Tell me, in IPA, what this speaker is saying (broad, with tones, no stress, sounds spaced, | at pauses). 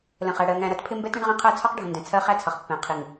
l ə̃˨ χ æ˨ ɽ ɜ˨ ŋ æ̃˨ ɾ ʌ˦ t pʰ ɪ˦ m b ɛ˦ t ɾ ə̃˦ ɳ ʁ ɛ̃˦ qʰ æ˦ t͡sʰ ɒ˦ q ɖʱ ə̃˨ n d ɛ̃˨ t͡sʰ ɜ˦ χ æ˦ t͡sʰ ʌ˨ χ pː ɛ̃˨ qʰ i˨ ŋ